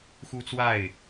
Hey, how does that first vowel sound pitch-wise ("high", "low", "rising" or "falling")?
high